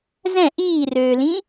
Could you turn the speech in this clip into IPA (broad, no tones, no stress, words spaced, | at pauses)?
zɛ̃ ʔiːrøːlĩ